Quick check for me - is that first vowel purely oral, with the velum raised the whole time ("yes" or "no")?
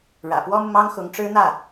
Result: yes